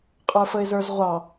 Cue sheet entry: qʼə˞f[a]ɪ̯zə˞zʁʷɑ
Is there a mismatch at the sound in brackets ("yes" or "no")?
yes